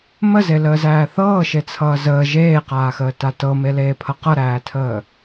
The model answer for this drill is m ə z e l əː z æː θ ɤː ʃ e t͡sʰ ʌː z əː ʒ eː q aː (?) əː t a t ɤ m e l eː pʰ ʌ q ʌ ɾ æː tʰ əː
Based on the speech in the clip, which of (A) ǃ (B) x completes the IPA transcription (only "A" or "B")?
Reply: B